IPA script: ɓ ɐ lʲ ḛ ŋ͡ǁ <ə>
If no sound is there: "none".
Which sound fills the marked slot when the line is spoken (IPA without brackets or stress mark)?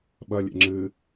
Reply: ɨ